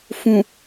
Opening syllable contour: low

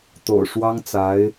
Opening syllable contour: low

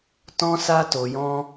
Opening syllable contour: high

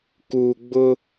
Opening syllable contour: low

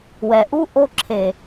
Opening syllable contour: low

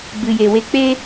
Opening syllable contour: low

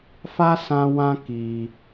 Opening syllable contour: high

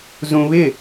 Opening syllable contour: high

